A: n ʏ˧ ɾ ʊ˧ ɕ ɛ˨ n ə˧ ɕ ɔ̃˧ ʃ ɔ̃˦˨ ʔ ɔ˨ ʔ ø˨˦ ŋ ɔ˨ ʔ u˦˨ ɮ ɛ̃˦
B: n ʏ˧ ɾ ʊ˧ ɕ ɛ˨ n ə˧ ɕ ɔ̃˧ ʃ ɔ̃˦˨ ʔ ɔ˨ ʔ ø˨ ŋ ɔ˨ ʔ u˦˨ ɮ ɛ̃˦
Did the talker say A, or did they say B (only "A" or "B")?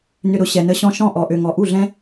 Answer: B